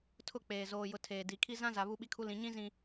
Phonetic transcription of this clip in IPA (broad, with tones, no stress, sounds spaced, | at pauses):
tʰ ʊ˦˨ k͡p eː˨ z oː˨ j ʊ˨ tʰ eː˨ d i˨ kʰ i˦ z ã˦ z a˨ β u˦ ɓ i˦ kʰ u˦ l ĩ˨ ɲ ĩ˦ z ĩ˨